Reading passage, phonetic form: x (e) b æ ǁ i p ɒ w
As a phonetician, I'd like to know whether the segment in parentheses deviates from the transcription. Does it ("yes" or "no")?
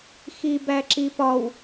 yes